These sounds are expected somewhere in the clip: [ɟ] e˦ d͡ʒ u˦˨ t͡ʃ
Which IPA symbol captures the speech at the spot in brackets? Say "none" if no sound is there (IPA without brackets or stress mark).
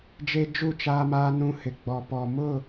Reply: d͡ʒ